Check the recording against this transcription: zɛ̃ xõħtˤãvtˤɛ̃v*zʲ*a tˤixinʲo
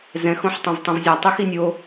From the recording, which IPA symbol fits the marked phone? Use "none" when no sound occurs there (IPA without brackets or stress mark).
zʲ